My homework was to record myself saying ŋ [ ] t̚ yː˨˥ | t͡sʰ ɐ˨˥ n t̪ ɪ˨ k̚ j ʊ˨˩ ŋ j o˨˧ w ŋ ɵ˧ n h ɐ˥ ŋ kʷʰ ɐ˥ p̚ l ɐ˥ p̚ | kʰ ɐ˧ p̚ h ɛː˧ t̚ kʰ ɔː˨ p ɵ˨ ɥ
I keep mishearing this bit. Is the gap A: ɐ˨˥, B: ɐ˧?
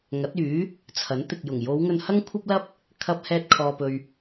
A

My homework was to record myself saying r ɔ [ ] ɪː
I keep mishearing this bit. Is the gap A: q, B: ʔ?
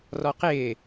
A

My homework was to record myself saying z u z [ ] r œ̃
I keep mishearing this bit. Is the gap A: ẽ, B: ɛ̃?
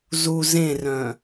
A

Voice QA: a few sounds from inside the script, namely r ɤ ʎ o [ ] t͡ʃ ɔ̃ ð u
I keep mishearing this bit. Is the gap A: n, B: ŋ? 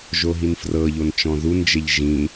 A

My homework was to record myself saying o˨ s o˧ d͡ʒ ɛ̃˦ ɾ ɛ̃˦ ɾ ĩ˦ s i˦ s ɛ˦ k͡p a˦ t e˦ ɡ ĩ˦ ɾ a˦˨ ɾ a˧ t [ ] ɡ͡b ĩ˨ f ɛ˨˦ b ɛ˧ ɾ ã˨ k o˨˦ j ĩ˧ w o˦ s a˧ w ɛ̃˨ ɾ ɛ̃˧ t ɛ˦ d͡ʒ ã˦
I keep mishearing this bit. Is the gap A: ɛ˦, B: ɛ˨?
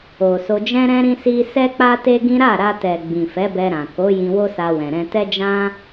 B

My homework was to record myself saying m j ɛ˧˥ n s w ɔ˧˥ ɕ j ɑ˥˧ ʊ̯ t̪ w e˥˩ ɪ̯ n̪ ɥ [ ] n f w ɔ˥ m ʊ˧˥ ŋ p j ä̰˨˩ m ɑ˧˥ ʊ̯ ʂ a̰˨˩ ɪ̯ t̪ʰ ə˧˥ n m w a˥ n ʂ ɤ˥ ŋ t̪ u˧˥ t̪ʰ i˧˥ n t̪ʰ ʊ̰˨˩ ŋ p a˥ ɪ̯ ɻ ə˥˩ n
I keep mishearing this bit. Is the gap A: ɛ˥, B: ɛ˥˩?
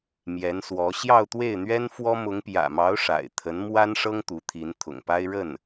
A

